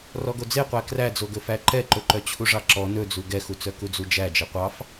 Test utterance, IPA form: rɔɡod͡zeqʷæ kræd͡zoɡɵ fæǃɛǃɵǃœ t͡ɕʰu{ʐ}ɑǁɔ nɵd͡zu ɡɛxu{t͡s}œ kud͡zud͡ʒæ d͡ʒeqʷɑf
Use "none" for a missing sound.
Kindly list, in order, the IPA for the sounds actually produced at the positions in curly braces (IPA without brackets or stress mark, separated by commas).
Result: ʐ, t͡s